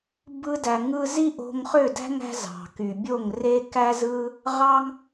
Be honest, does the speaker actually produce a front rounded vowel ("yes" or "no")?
yes